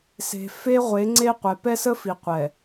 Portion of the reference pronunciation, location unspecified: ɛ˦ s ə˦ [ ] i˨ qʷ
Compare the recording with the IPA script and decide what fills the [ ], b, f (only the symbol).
f